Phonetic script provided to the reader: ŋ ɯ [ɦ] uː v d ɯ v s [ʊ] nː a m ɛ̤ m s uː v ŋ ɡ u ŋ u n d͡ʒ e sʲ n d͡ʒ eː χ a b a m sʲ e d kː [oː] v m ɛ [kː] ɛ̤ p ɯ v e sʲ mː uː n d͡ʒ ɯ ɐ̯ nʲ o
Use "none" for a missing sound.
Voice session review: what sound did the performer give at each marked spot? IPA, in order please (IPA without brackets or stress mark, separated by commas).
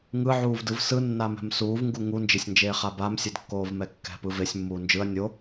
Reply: ʕ, ɯ, oː, kː